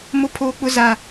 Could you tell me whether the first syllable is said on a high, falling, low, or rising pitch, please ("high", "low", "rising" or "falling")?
high